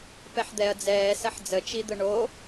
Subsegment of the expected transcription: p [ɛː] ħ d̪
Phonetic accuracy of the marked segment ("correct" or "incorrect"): incorrect